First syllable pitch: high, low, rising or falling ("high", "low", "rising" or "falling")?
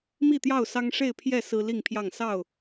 falling